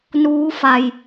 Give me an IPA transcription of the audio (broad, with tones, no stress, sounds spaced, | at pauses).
n uː˦˥ f a˨˩ j